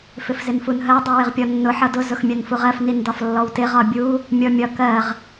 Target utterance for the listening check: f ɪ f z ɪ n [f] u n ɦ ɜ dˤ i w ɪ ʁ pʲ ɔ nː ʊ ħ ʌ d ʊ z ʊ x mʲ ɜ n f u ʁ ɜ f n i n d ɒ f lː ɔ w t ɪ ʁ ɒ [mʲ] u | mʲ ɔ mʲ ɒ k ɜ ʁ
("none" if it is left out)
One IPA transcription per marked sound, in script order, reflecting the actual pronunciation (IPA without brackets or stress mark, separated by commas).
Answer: f, bʲ